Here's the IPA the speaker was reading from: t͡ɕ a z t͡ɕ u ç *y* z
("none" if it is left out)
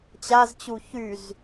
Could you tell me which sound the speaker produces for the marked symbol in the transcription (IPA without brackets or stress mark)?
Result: y